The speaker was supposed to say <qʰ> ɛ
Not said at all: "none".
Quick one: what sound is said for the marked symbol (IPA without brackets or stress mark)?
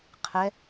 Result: qʰ